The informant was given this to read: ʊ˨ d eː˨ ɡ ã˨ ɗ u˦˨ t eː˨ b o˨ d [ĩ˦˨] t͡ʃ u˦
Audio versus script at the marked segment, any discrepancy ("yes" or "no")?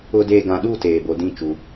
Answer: no